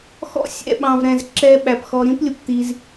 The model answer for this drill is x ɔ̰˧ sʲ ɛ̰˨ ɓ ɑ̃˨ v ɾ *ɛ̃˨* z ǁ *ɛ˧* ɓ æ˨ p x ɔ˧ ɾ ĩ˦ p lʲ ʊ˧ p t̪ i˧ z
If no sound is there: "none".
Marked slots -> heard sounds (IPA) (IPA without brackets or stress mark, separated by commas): ɛ̃˨, ɛ˧